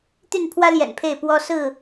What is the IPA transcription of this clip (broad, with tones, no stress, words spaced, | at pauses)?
t̪y˥˨n pʰwä˦ljɛ̰˨˩n pʰe˥˨ɪ̯pwɔ˦ sɹ̩˥˨